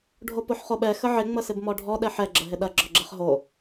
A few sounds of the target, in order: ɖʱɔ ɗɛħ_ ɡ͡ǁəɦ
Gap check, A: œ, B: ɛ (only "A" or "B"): B